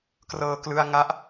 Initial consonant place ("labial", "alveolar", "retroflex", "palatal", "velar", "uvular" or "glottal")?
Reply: velar